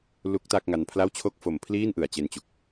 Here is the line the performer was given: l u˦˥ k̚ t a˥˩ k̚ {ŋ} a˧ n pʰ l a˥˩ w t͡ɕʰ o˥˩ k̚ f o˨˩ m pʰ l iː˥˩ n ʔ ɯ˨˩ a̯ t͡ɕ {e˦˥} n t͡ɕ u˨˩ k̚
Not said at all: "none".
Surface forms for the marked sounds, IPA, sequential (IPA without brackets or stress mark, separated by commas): ŋ, e˧